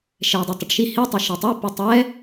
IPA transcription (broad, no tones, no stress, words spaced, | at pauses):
ʃɛi̯dˤotˤʌʈʃi hitˤʌ ʃetˤe pɯtˤɛ